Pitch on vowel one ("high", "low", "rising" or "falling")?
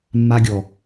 high